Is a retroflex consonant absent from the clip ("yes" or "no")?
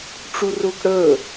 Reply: no